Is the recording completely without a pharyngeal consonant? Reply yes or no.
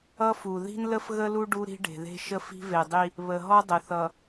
yes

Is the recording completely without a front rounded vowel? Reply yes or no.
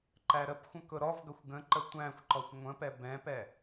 yes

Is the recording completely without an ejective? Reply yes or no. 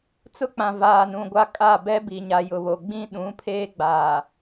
no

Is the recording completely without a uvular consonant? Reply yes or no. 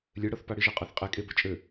no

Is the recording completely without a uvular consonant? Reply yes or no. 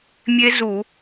yes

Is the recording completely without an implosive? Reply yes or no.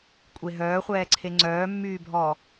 yes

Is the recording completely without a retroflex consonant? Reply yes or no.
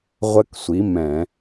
yes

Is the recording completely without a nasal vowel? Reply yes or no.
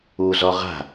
yes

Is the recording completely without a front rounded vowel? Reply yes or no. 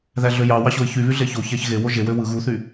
no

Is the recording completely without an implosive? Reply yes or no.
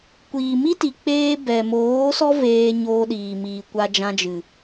no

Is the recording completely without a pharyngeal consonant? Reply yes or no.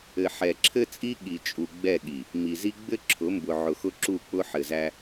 no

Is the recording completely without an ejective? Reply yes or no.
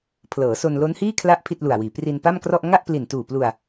yes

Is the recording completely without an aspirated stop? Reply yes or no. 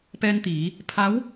no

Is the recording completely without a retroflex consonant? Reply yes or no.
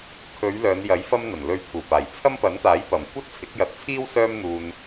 yes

